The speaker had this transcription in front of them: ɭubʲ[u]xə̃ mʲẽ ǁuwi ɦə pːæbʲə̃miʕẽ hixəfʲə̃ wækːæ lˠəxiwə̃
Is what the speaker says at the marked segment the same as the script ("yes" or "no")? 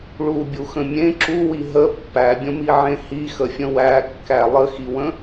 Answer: yes